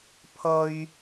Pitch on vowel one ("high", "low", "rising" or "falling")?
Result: high